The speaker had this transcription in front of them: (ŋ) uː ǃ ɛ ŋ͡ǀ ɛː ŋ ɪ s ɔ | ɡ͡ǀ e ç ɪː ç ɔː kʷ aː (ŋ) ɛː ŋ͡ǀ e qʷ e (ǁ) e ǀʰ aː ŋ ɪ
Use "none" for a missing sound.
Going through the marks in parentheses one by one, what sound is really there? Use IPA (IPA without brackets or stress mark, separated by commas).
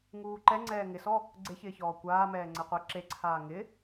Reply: ŋ, m, ǁ